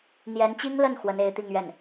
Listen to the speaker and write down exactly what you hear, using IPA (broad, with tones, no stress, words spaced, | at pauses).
n̪jɛ˧˥nt͡ɕi˥ŋlə˥˩n xwə˧˥ne˧˥ɪ̯ t̪i˥˧ŋɥɛ˥˩n